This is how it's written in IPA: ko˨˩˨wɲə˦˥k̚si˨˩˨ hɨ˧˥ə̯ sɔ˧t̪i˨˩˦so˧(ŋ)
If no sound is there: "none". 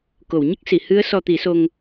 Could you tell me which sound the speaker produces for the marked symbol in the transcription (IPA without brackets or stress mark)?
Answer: ŋ